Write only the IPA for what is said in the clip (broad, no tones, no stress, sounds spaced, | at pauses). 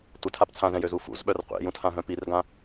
tʷ ə tʰ a p t͡sʰ ã z ɛ̃ j ø z u f ṵ z ɓ œ r qʷ ḛ j ũ tʰ ã ɦ œ̃ p i r ɡ ã